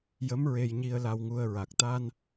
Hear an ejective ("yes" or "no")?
no